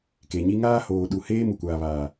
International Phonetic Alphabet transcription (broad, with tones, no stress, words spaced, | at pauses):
ke˨ɲi˦ ŋaː˦hoː˨ɗu˨heː˦ mu˨kʷaː˨βaː˨